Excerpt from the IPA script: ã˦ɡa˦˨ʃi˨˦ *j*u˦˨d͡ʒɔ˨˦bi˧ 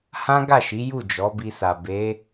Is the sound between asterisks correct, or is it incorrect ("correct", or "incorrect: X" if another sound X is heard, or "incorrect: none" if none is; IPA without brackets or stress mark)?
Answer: correct